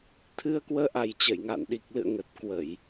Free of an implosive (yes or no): no